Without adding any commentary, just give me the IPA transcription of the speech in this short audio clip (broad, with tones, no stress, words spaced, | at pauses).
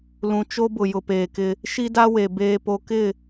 lũ˨ t͡ʃo˦bʊ˨ jʊ˨peː˨kɪ˦ | ʃi˦da˦we˨ beː˨po˨kɪ˦˨